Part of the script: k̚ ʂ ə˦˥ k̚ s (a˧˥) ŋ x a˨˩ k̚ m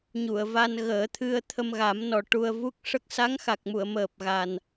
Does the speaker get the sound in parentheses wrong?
no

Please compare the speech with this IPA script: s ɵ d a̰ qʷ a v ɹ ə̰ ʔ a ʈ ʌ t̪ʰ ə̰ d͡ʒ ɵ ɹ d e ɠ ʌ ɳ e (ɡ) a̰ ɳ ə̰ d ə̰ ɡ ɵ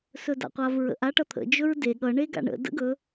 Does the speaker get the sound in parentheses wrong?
no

